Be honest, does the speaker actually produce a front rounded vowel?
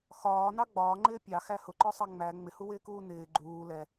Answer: no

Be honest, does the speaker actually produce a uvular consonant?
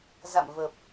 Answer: no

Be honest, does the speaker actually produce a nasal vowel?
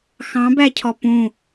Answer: yes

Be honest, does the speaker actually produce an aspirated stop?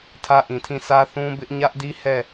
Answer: yes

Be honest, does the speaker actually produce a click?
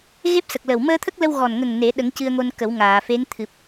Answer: no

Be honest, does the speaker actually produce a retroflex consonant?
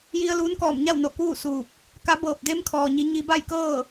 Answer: no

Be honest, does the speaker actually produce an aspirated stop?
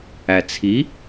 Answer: yes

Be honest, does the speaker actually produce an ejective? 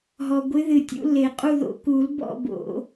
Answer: yes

